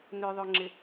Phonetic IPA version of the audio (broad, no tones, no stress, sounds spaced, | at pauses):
n ø ðˤ o ŋ͡ǁ ɪ